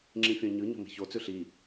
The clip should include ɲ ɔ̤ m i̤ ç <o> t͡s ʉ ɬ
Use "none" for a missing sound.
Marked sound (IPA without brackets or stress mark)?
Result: o